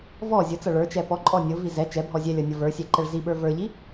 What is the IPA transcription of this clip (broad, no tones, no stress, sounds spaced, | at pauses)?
v ɔ zʲ ʊ t͡s ʌ ɭ ə˞ t͡ʃ ɛ p ɔ ǃʼ ɔ nʲ ʊ v i z ɛ t͡ʃ ɛ bʱ ɔ zʲ ɛ lʲ ʌ nʲ ʌ v ə˞ sʲ ɛ ǃ ɛ ɭ z i ɓ ə˞ v ə˞ ʎ i